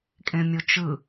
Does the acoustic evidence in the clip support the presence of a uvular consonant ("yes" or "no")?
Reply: no